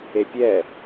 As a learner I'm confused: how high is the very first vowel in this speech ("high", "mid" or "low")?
mid